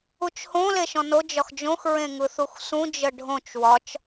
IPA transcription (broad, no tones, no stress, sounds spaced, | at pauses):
u t͡ʃ h õ l e ʃ ɔ̃ n o d͡ʒ ɒ x d͡ʒ õ x ɹ ẽ ŋ ɯ θ u x s ũ d͡ʒ ə ɖʱ õ t͡ʃ w ɒ t͡ʃ